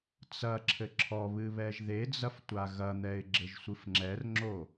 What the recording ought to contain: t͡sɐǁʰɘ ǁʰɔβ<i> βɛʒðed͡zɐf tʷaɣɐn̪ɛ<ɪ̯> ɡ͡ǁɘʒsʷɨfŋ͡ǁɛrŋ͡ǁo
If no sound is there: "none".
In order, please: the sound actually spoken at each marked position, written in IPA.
ɨ, ɪ̯

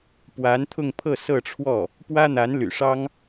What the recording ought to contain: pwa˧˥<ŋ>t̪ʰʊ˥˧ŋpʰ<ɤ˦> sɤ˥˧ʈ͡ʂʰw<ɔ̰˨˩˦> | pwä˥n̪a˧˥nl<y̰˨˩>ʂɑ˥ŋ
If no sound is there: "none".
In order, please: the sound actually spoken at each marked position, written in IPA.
n, ɤ˥˧, ɔ˥˩, y̰˨˩

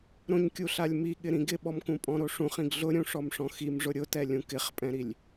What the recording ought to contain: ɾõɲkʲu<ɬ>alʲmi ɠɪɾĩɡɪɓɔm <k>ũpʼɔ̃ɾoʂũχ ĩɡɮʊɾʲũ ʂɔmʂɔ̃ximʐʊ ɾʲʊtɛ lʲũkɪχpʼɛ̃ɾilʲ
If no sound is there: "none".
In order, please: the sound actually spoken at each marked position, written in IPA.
ɬ, k

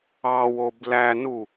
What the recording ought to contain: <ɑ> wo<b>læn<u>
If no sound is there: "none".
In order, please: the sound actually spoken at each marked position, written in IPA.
ɑ, b, u

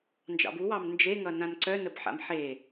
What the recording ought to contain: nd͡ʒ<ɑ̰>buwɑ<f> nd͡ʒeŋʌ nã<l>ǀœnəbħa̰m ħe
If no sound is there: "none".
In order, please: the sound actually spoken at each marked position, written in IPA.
ɑ̰, m, n

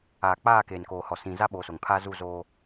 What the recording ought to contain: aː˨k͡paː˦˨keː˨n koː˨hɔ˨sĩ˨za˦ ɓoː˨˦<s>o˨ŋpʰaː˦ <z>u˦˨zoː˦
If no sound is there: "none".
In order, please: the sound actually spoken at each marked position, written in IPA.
s, z

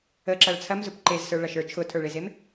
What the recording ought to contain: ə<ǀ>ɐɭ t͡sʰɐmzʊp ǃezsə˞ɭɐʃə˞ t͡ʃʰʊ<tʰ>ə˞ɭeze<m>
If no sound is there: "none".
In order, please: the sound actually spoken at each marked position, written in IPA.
ǁ, tʰ, m

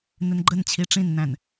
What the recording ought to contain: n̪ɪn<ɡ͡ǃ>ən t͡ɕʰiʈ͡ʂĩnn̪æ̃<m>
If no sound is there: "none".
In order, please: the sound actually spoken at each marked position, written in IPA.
ɡ͡ǃ, n

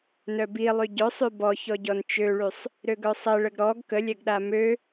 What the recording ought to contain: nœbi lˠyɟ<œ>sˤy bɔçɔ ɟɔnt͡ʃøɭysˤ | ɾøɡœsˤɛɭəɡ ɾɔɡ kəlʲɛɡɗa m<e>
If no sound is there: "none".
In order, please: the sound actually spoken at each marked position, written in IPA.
œ, ø

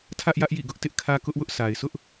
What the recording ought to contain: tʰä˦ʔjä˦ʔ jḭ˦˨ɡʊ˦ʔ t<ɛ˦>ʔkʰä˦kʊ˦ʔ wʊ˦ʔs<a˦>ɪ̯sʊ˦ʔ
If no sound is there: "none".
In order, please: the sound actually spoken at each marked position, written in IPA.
ɪ˦, a˨

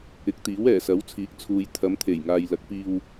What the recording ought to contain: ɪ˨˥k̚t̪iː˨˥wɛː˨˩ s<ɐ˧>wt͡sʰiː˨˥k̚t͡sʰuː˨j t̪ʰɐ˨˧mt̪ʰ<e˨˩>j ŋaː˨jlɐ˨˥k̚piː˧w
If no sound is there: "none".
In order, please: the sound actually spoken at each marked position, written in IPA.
ɐ˨˥, e˨˩

